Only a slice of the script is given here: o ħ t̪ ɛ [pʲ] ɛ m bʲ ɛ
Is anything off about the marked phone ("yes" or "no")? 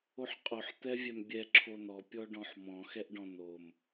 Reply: yes